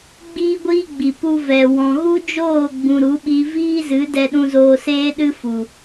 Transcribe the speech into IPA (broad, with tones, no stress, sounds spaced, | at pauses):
ɡ͡b iː˦ ɡʷ iː˦ ɡ͡b i˨ p u˧ v ɛ˨ w ɔ̃˨ ɣ u˦ d͡ʒ oː˦˨ ɡ͡b ũ˨ ɾ u˨˦ ɓ i˧ v iː˦ z ɨ˨˦ d ɛ˧ ɗ ũ˧ z oː˧ s eː˦ ɗ ɨ˦ f u˨